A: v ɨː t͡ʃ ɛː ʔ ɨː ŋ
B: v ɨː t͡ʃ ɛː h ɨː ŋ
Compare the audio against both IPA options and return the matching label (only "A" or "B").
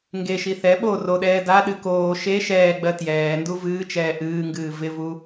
A